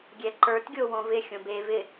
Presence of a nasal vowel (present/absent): present